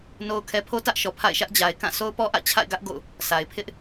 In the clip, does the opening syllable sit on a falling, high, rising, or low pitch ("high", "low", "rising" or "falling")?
high